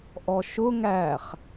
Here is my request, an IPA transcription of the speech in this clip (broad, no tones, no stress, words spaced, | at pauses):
ʔɔʃʊ ŋæχ